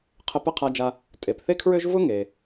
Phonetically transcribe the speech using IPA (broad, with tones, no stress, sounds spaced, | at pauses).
qʰ ə˧ p ə˥ qʰ a˧ d͡ʒ a˧ | tʼ e˩ p θ e˥ kʰ ɹ ø˥ ʒ v ʊ˥ ŋ e˩